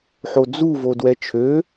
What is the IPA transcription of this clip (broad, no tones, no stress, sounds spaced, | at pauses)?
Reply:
ħ o d͡z u v o d w ɛ t͡ʃʰ ø